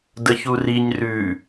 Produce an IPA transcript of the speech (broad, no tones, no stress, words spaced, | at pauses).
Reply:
dəçuriɲ rʉ